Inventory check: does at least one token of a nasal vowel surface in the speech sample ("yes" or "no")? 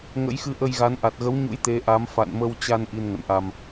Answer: no